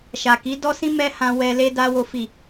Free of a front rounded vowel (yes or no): yes